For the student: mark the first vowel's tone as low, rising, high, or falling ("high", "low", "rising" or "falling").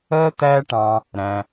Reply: high